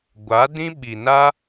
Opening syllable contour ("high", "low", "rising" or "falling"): rising